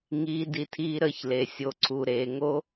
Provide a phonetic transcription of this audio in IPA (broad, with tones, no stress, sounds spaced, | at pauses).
ŋ iː˧ d i˧ tʰ iː˧ ɾ əː˧ ç l e˩ sʲ o˩ ǀʰ u˩ ɾ eː˩ ŋ o˧